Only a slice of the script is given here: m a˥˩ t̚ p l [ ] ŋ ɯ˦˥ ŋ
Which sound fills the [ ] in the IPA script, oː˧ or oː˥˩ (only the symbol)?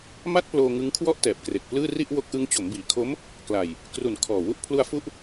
oː˧